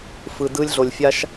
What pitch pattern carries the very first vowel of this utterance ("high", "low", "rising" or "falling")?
low